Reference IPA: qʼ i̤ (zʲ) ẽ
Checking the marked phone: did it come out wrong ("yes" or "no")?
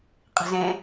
yes